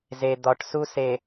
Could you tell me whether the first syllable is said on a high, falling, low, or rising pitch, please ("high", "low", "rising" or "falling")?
low